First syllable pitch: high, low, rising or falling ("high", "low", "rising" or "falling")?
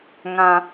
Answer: low